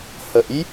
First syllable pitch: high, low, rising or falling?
rising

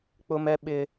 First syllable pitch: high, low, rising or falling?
high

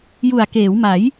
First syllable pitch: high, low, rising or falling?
low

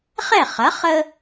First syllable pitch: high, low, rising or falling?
falling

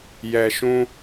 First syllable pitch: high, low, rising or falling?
low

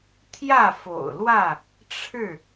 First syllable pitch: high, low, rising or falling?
falling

